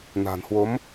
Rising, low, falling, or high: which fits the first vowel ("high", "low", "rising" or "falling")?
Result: low